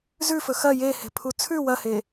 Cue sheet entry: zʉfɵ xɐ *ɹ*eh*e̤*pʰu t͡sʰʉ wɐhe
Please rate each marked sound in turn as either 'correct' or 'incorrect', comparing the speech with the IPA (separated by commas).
incorrect, correct